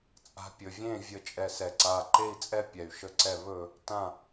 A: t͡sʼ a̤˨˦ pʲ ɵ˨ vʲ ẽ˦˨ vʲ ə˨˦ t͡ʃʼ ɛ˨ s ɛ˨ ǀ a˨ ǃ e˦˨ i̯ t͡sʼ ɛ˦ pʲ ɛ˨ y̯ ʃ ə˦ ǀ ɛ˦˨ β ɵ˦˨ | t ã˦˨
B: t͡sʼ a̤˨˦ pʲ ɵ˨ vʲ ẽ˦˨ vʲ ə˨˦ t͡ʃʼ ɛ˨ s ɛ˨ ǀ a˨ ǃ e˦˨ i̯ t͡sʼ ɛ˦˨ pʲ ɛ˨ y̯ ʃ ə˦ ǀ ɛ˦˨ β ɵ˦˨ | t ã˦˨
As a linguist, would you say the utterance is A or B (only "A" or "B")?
B